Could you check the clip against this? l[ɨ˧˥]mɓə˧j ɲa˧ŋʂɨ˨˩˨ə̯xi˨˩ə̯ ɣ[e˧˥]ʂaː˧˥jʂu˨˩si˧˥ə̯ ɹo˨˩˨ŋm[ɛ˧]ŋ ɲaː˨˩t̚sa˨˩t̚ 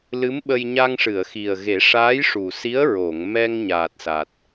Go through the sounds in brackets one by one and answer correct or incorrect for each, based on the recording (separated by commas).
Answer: correct, incorrect, correct